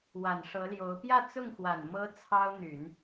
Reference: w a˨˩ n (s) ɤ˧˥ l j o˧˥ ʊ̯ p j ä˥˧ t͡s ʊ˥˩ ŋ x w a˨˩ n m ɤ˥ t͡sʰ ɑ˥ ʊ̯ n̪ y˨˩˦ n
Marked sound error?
yes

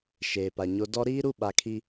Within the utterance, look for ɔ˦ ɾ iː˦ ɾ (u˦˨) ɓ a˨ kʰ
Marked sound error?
no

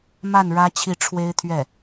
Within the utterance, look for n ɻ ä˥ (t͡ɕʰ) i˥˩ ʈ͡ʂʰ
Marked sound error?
no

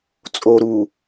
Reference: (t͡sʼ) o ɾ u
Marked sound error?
no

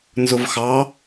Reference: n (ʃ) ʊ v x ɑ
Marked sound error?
yes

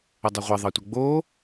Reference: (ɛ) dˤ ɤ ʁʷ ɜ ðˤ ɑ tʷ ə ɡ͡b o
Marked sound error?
yes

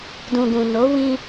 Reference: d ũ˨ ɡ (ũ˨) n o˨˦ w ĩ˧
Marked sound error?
no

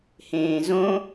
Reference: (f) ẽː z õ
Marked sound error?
yes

